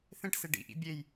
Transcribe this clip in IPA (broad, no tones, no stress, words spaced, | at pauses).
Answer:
θẽʈse ɖḭʔḭ bʲej